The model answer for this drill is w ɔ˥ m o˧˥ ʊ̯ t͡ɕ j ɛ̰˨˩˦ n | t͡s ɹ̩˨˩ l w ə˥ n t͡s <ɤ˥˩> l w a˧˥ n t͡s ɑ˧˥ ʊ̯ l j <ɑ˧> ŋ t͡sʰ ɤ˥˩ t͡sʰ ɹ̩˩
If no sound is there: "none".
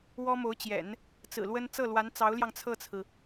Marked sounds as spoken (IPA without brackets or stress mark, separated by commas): ɤ˥˩, ɑ˧